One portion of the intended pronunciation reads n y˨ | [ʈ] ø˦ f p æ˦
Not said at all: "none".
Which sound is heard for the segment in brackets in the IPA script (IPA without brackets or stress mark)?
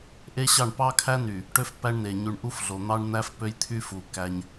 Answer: ʈ